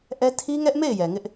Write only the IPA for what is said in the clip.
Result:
ʔɛ˦ tʰi˦ŋɛ˦ʔme˦˨ɪ̯ jɛ˨ŋɪ˦ʔ

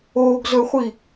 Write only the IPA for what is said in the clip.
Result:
oɡzɵχʷi

